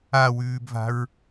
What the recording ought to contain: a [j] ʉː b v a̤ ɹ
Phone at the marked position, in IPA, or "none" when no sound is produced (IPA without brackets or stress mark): w